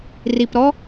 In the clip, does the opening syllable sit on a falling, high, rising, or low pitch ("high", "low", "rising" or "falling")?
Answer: low